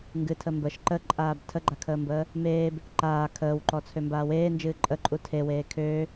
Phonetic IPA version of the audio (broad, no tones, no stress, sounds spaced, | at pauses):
ŋ ɡ ɨ tʰ ə m b ə ʃ ǃ ə ǃʼ aː b tʰ ə ɡ͡ǃ a kʰ əː m b əː | m eː b | ǃ aː kʰ əː w ǃ ɔ t͡sʰ ø m b aː w eː n d͡ʒ ɨː ǃʼ ə ǃʼ u tʰ e w eː kʰ øː